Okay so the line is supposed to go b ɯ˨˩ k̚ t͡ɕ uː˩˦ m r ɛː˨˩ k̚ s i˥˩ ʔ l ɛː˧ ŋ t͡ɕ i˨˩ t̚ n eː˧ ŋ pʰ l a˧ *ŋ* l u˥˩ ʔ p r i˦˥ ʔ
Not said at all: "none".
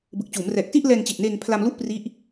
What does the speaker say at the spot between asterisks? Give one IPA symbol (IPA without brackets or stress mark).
m